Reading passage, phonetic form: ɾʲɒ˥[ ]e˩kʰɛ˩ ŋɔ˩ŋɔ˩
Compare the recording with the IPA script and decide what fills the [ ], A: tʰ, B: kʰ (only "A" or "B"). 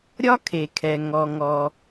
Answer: B